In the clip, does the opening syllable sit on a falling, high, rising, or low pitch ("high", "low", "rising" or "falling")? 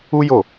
high